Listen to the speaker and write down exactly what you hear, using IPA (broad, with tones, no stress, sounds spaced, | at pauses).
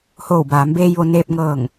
h oː˧˩ w b aː˩˧ m b eː˧ j ʋ o˩˧ n eː˧ p̚ ŋ ɤː˧˩ ŋ